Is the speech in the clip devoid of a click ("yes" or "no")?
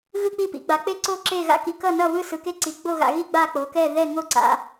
no